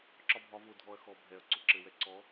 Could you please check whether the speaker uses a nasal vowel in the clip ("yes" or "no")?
no